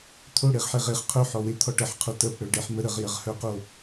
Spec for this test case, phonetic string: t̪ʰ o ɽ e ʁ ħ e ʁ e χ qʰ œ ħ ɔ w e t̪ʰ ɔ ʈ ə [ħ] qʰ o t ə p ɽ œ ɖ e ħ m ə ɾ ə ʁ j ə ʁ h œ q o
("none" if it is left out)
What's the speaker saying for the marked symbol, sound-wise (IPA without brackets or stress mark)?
ħ